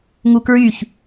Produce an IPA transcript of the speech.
ŋ u k ɹ y ç

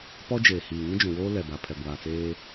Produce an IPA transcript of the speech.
p ɔ˦ d͡ʒ eː˨ h iː˨ ŋ ĩ˦ d͡ʒ ũ˨ w oː˦ l ɛ˨ b a˨ pʰ ɛ˨ ɡʷ aː˨ t͡s eː˦

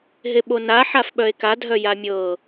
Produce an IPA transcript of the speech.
ɦ e ɓ o n a ħ a f ɓ œ e̯ k a dʱ œ j a mʲ ɤ

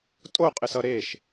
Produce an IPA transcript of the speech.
tʼ o qʼ ɪ s ʌ ɾ e ʃ

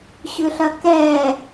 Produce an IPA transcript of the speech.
ɕ ʏ ɬ ɐ k ɛ

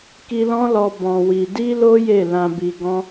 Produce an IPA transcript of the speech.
k i˧ l ɔ̃˦ l ɔ˧ b ɔ̃˧ w i˧ d i˦ l o˦ j e˦˨ l ã˧ b i˧ ɡ ɔ̃˦

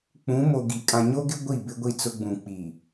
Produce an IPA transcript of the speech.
k͡p ũ˨˦ m o˨ ɡ i˨ kʼ ã˨ ɲ o˦ ɡ ɪ˦ ɡʷ i˦˨ b ɪ˦ ɡʷ i˦˨ t͡s ʊ˦ ɡ͡b ũ˨ k͡p i˨

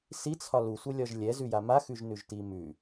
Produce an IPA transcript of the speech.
s i t͡sʰ ɒ l u sʷ ɛ lʲ ɒ ʒ lʲ ɛ z ʉ j a m a x ʉ ʒ n ʉ ʒ t i m ʉ

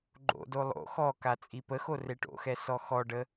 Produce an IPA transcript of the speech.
ɡ͡ǃ o̰ d o lˠ o̰ x ɔ k a t͡sʼ i p ə x o r e ʈ o̰ x ɛ s ɔ x ɔ ɖ ə

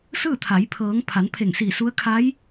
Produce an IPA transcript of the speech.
s ɯː˥˨ t̪ʰ a˩˧ j pʰ ɤː˩˧ ŋ pʰ a˩˧ n pʰ e˧˩ ŋ s iː˧˩ s u˧˥ ə̯ kʰ a˧˥ j

